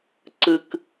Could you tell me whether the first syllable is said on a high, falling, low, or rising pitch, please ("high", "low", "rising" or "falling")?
high